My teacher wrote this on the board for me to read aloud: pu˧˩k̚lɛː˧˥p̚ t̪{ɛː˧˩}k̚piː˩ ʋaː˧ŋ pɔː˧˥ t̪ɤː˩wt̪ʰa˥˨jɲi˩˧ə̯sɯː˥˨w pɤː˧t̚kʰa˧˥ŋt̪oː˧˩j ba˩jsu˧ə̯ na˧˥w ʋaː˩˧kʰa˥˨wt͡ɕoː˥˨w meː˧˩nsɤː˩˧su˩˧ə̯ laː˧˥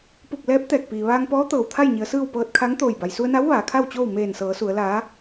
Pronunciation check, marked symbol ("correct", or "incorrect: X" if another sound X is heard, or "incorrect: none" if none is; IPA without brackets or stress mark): correct